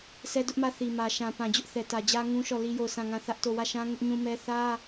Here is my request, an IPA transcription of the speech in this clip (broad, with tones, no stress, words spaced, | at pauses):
sɛ˦dʊ˦ʔ mä˦˨θi˨mä˨ ʃã˨ pã˨d͡ʑʊ˦ʔ θɛ˨tä˨ d͡ʑä˦ŋũ˦ʃɔ˦˨ li˦jo˦˨ʊ̯ sã˦˨ŋã˦˨ θä˦ʔto˦˨ wä˦˨ʃã˦ ŋʊ˦ʔɲũ˦mɛ˦ θä˦